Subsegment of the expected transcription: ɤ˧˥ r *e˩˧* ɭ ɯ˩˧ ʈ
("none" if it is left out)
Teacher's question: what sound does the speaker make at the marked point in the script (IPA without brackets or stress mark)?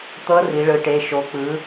i˩˧